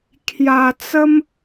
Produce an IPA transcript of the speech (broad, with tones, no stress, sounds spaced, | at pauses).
kʰ j a˧ t͡s ə˦ m